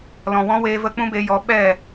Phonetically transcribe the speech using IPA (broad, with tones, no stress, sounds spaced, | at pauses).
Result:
l ɔ̃˨ w ɔ̃˦ w eː˧ v ə˦ k͡p ũ˦ b e˧ j ɔ˨˦ ɓ ɛ˦˨